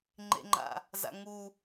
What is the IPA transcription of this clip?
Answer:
ŋ͡ǃ ḛ ŋ͡ǃ a̰ | z a̰ ŋ u

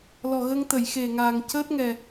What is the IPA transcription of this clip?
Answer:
l ɔ˨˩ ɣ ə˧ ŋ t̪ ə˨˩˨ j x e˨˩ ŋ aː˨˩ ŋ c əː˦˥ t̚ ŋ ɛ˨˩

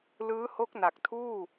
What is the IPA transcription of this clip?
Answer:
l ɯː˦˥ h o˦˥ k̚ n a˨˩ k̚ tʰ uː˥˩

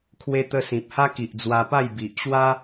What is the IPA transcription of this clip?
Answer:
kʰ w e˧ t̪ ə˧ s ĩ˨ p̚ h a˦ k i˨ ʔ d͡z w a˧ p a˥˧ j b i˨ ʔ ɕ w a˦

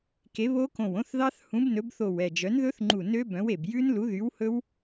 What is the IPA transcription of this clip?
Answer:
k e˨˥ β o˦˥ k õ˧˩ w õ˦˥ θ ð ɑ˦˥ θ h ũ˨˥ b n ɵ˨˥ b θ o˧˩ w ɛ˧˩ d͡ʒ œ˨˥ n ð ɵ˦˥ θ ŋ͡ǃ u˧˩ n ø˦˥ b œ̃˨˥ w e˧˩ b j ʉ˦˥ n l u˨˥ ð y˨˥ w h ɵ˦˥ w

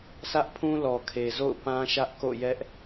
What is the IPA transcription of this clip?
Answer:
sʰ ä˦ ʔ pʰ ũ˦ l ɔ˨ kʰ e˨ z o̰˦˨ ʊ̯ p ã˦ ʃ ä˦ ʔ k o̰˦˨ j ɛ˦ ʔ

